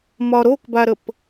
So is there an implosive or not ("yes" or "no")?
no